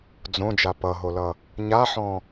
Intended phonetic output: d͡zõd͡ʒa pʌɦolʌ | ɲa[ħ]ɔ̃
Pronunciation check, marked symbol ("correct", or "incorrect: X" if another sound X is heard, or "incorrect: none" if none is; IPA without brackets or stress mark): correct